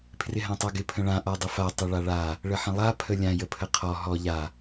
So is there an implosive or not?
no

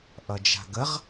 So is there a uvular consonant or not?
yes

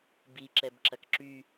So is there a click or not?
yes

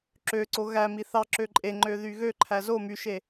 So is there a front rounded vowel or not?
yes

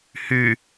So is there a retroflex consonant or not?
no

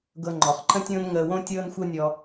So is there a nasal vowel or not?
yes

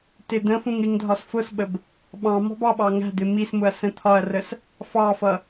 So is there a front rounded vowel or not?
no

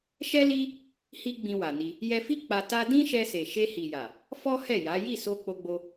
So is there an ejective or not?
no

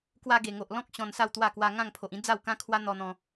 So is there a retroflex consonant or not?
no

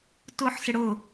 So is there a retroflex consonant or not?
yes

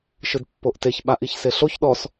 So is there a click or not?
no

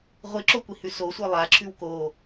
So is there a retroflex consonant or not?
no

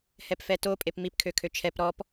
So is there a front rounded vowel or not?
yes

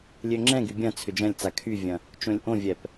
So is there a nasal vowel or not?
yes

